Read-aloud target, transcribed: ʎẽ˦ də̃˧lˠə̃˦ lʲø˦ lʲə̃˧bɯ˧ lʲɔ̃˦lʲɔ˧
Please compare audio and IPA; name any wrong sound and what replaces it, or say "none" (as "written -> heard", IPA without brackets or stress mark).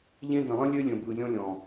ɔ˧ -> ɔ̃˧